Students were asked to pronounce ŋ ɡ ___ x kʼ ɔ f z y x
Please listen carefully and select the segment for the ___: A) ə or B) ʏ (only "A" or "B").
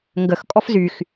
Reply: A